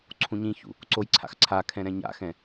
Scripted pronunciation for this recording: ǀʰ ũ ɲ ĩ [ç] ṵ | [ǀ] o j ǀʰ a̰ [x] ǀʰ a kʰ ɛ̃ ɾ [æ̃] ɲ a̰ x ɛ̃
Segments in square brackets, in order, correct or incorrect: correct, correct, correct, incorrect: ɛ̃

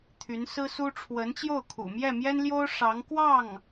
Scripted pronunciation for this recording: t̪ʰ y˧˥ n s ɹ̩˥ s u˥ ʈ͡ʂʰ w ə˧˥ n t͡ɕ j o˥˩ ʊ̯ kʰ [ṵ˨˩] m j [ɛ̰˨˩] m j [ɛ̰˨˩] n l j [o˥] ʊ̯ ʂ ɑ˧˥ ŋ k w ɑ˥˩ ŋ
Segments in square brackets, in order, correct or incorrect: correct, incorrect: ɛ˥˩, incorrect: ɛ˥, correct

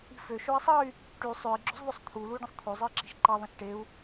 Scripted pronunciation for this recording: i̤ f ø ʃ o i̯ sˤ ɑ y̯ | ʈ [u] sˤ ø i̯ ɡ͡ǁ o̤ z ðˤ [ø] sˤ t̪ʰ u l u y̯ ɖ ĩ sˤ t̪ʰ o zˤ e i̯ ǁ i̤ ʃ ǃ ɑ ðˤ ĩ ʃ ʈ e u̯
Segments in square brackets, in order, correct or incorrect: incorrect: y, correct

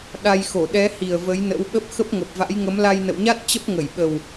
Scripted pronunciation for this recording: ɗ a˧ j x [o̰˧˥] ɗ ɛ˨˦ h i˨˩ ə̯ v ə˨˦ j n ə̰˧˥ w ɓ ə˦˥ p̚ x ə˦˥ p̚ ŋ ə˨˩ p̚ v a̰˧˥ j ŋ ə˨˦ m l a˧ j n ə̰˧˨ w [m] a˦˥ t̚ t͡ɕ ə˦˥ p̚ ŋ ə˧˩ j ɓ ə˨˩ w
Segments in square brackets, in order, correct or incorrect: incorrect: o˧˩, incorrect: ɲ

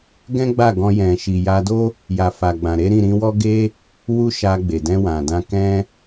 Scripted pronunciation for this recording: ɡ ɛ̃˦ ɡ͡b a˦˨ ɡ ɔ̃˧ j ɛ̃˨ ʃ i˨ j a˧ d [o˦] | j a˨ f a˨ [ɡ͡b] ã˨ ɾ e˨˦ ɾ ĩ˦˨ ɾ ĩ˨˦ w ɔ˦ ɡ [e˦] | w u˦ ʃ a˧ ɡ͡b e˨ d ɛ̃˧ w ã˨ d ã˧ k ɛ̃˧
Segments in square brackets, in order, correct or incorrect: correct, correct, correct

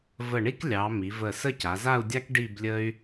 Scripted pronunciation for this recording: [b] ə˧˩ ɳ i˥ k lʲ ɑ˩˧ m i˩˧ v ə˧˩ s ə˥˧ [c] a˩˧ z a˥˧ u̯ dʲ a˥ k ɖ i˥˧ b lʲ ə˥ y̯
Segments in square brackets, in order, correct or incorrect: incorrect: v, correct

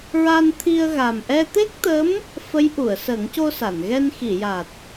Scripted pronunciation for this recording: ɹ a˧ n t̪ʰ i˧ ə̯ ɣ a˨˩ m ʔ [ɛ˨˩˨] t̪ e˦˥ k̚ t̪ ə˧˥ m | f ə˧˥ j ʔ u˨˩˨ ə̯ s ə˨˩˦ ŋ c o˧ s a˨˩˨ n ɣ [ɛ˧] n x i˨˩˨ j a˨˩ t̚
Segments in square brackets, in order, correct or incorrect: incorrect: ɛ˧, correct

